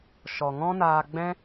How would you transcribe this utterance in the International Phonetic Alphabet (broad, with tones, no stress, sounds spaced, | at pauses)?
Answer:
ʃ ɔ˨ ŋ ɔ̃˦ n aː˧ ɡ͡b ɛ̃˦